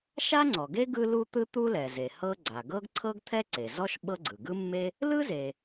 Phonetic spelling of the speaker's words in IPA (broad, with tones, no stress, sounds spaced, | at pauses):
ʃ a˥ ŋ͡ǀ ɔ˩ ɡ e˥ ɡ ɯ˥ l u˥ t̪ ɯ˥ t̪ u˥ l ɛ˩ z e˩ h ɤ˥ ɡ͡ǀ a˩ ɡ ɤ˥ ɡ ǀʰ ɤ˥ ɡ t̪ʰ ɛ˥ ǀ e˩ z ɔ˥ ʃ ɓ ɤ˥ ɡ͡ǀ ɯ˩ ɡ ɯ˥ mː e˥ | l ɯ˥ z e˩